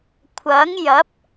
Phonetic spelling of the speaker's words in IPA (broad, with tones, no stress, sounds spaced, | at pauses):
kʷʰ ɐ˨˥ ŋ j ɐ˨˥ p̚